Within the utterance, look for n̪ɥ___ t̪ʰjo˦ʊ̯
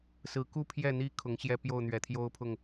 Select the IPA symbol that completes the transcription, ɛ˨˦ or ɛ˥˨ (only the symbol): ɛ˨˦